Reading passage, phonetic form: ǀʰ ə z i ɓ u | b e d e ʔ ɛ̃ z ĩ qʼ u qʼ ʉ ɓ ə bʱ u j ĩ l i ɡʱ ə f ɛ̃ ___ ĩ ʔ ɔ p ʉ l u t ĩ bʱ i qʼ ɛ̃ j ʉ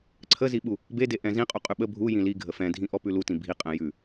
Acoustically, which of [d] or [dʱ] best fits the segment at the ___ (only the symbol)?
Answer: dʱ